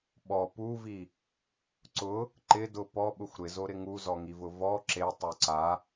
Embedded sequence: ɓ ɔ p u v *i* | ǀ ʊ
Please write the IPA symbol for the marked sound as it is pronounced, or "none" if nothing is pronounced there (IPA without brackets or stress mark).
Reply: i